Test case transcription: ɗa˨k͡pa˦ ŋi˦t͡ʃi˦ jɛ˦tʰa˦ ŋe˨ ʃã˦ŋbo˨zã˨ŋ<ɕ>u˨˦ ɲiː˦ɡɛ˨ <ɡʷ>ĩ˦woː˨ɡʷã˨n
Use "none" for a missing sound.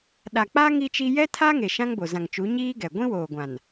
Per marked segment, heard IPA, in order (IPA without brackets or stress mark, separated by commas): t͡ʃ, ɡʷ